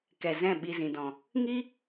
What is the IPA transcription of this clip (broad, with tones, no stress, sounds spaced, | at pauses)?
k ɛ˨ z ɛ̃˦˨ ɓ i˧ z ĩ˨ d ɔ̃˨ | ŋ i˦